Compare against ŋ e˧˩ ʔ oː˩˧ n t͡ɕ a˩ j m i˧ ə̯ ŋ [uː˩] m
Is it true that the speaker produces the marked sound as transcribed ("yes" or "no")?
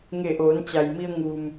yes